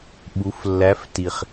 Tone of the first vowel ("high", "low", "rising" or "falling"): rising